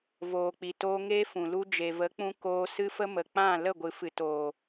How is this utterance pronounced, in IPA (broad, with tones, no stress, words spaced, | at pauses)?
voː˨ k͡pi˨toː˧ ŋeː˦fũ˨ lu˧ d͡ʒe˨və˨˦k͡pũ˧ koː˧ sɨ˦fə˦mə˨ k͡pã˦˨ lə˦˨ɡʷɨ˨fɨ˨ toː˨